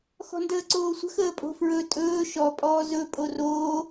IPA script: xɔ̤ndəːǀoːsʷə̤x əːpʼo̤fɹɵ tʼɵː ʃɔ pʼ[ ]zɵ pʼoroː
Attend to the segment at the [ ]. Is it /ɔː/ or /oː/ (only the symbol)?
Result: ɔː